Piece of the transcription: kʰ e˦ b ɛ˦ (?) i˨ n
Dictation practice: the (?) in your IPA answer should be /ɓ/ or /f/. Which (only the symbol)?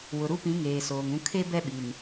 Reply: ɓ